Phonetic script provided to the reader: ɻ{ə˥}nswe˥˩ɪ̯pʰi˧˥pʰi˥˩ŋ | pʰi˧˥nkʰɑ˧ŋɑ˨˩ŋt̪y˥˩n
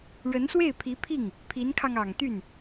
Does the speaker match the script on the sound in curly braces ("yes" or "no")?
no